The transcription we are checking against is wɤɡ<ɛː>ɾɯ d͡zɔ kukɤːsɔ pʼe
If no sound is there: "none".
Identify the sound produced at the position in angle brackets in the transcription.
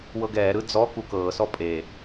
ɛː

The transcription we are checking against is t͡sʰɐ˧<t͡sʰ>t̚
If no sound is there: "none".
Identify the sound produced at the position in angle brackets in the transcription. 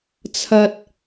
none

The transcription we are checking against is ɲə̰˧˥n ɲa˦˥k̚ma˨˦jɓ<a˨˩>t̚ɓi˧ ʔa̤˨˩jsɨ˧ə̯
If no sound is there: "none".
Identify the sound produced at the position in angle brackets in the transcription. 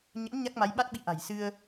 a˦˥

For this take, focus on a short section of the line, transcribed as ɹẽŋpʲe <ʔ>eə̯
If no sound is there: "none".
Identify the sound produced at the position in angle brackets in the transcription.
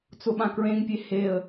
h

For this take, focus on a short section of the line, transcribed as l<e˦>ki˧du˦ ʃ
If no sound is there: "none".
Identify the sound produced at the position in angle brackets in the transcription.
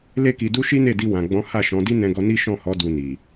e˦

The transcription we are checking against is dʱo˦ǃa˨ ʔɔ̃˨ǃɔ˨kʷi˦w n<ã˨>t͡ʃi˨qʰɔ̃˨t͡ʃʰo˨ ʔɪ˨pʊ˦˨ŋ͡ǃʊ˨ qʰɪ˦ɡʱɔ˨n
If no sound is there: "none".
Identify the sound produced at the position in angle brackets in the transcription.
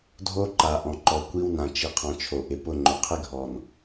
ã˨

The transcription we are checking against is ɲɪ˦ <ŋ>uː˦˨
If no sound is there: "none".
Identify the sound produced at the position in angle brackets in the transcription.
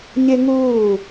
ŋ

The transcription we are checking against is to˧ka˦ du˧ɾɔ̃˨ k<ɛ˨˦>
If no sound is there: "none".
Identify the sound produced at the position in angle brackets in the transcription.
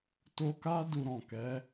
ɛ˨˦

